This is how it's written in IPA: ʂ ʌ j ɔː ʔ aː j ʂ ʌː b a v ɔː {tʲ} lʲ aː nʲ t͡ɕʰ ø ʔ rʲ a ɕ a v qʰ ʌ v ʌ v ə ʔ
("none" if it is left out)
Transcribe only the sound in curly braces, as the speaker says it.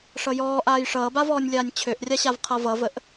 nʲ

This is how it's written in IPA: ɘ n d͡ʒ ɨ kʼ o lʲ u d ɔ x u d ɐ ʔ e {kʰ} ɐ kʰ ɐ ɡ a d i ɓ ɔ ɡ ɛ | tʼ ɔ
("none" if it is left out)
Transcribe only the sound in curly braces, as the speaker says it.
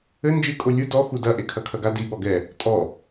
kʰ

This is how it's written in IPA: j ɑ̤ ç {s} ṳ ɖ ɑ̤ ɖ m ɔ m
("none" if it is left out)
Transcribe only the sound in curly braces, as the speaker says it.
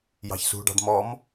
s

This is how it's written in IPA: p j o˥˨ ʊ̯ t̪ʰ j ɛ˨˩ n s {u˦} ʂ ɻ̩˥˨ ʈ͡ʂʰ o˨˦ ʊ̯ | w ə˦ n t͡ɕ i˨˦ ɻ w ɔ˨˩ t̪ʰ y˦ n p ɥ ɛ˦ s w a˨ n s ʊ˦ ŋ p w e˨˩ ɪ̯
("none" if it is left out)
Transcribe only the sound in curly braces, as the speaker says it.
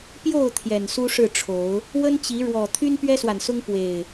u˦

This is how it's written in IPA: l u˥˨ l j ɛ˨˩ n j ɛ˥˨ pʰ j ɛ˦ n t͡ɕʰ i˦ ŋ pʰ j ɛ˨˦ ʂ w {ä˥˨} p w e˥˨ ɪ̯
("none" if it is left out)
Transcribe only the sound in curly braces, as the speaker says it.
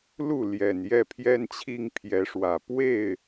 ä˨˩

